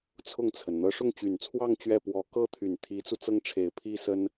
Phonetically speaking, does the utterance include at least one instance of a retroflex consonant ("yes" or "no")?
yes